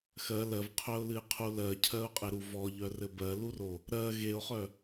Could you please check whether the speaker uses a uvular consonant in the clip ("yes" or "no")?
yes